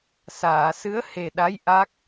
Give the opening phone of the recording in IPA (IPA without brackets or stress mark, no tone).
s